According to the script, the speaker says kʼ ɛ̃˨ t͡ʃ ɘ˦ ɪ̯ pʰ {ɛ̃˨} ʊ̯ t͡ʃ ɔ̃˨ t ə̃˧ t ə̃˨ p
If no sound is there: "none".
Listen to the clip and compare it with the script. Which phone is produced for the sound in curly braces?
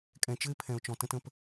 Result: ɛ̃˨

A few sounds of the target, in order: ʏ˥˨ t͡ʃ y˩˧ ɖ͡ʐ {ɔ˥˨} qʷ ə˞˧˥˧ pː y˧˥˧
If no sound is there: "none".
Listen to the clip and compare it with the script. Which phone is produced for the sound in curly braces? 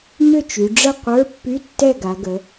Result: ə˥˨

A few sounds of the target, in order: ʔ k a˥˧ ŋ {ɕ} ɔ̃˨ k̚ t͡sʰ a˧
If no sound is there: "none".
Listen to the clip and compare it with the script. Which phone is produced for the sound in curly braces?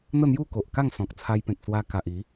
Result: s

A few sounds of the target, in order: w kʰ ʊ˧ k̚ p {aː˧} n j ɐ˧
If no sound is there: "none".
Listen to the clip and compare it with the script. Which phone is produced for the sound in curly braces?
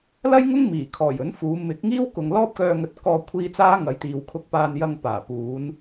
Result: aː˧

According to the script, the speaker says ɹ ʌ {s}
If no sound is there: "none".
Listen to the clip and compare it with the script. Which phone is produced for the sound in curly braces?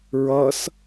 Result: s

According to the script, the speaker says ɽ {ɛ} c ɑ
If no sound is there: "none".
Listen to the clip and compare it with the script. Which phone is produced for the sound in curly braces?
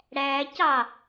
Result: æ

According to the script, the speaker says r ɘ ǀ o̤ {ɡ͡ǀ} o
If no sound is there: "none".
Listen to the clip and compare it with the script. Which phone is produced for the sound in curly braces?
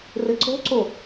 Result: ǀ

